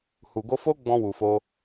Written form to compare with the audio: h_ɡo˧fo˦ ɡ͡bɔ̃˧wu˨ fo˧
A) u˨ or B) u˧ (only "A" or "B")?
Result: A